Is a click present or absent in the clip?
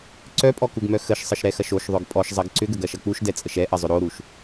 present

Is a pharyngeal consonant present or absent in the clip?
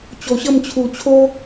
absent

